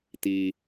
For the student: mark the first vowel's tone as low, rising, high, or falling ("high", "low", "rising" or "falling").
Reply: high